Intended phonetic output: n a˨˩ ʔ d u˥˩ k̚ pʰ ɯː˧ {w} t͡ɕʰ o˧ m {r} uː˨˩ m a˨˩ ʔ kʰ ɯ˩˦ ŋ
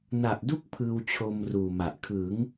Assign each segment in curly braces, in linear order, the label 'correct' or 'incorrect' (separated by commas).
correct, correct